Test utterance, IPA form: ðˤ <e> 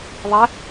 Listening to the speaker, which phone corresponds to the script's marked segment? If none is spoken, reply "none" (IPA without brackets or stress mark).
ɛ